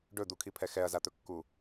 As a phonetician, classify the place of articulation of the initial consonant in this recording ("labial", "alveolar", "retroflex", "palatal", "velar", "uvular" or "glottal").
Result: retroflex